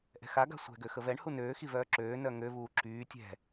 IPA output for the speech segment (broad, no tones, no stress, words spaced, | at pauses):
ʔɛ̤xaɡa̤ sʷɛ̤ɡø xəvɛɳhu nøːxivœː ǁøː nœŋøvuː ǁyː tʲɛ̤